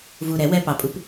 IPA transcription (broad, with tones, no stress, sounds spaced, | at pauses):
v u˨˩ ɾ ɛ˨˩˦ w ɛ˧ p ɑ˨˩ pʼ u˨˥ p